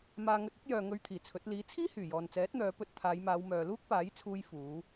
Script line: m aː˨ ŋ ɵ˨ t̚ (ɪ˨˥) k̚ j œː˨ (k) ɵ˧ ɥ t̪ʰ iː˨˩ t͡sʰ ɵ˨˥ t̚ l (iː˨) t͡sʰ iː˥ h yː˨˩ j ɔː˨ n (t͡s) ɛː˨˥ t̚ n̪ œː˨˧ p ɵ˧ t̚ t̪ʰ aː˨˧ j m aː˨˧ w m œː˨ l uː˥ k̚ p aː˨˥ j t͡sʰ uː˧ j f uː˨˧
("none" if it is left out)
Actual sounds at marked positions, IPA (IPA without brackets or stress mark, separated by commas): ɪ˨˥, ŋ, iː˨˥, t͡s